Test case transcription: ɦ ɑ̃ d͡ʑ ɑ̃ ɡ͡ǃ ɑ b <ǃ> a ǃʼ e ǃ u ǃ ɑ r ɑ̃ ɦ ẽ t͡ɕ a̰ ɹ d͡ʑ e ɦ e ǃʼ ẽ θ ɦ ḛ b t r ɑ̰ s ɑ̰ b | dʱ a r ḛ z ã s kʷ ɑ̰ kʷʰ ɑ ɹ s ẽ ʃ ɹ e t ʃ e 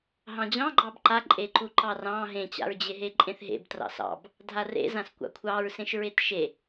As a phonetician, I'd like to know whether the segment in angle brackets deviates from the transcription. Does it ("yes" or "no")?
no